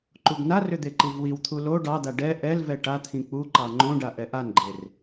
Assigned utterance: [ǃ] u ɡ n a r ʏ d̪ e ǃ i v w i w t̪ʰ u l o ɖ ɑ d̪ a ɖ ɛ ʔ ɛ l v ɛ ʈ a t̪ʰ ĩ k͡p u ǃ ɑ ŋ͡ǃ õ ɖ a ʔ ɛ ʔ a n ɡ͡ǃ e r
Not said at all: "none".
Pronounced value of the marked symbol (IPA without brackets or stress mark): ǃ